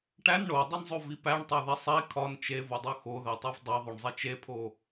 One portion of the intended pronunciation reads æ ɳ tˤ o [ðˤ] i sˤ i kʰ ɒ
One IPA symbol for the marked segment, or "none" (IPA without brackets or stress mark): ð